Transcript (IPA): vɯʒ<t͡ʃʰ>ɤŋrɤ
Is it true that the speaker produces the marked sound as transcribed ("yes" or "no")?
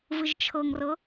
yes